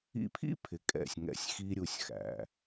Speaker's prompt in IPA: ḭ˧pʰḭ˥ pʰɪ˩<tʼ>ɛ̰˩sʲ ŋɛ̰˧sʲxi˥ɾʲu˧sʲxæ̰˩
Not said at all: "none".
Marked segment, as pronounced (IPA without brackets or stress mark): kʼ